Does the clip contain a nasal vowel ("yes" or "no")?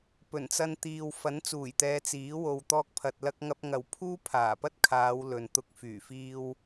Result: no